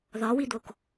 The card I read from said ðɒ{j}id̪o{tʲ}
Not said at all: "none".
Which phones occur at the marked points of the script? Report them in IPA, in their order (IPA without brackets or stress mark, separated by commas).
w, k